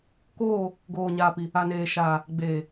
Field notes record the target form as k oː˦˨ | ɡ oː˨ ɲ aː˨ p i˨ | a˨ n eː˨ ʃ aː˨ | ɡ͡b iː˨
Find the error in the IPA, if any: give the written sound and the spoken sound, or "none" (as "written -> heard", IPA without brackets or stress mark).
iː˨ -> eː˨